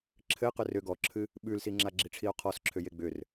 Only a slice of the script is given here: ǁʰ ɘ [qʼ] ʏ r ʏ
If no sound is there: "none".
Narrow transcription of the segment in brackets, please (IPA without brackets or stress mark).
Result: q